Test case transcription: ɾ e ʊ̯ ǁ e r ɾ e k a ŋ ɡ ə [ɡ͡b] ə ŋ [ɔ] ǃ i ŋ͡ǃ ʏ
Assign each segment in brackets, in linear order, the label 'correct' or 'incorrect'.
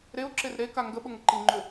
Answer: incorrect: ɓ, incorrect: ə

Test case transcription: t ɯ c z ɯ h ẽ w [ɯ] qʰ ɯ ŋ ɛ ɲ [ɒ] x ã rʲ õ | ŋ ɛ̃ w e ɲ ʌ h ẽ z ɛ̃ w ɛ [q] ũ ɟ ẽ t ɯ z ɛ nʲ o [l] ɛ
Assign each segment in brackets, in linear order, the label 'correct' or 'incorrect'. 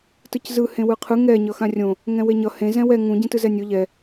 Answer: correct, incorrect: ʌ, incorrect: ŋ, incorrect: ʎ

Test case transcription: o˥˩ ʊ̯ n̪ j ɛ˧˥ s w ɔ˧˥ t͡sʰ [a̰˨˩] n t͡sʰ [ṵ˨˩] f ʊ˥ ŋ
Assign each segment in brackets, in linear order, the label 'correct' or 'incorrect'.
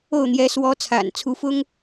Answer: correct, incorrect: u˧˥

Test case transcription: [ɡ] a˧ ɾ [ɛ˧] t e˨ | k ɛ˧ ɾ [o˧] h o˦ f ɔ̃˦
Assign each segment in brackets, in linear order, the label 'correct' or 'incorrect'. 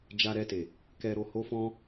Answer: incorrect: d͡ʒ, correct, correct

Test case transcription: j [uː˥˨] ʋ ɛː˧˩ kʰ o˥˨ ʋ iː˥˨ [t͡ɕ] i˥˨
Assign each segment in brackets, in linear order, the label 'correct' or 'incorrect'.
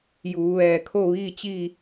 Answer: incorrect: uː˩˧, correct

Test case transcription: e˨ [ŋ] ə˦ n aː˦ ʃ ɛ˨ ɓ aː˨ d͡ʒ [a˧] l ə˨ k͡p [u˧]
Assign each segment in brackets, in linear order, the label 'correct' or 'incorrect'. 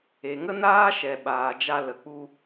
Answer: correct, correct, correct

